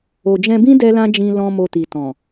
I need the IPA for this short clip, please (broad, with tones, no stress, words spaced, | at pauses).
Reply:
o˨d͡ʒɛ̃˧bĩ˦ dɛ˦lã˦d͡ʒĩ˧ lɔ̃˦mo˧ti˨ tɔ̃˨